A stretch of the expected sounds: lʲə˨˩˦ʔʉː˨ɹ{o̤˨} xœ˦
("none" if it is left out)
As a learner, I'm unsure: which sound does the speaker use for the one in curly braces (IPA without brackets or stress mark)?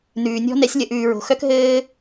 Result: o̤˨